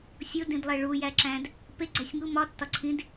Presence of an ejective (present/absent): absent